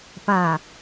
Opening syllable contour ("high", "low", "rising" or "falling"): low